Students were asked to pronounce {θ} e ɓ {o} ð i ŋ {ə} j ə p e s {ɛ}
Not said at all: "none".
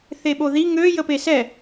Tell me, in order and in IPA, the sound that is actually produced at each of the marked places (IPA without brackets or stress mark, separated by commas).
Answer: θ, o, ø, ɛ